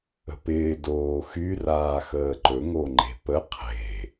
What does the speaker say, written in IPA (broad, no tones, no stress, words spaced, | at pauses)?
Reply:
ə̤pɪː doːxy raːxəːǃɵ ŋoŋ͡ǃe̤pə qʰe̤